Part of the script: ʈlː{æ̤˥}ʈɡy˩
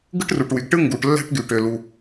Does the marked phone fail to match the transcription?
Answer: no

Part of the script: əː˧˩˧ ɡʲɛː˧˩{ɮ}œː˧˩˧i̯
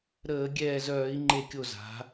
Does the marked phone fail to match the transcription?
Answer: yes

